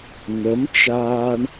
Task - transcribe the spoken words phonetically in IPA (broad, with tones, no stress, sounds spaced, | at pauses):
n̪ ə˨˦ m t͡ʃ aː˧ ɳ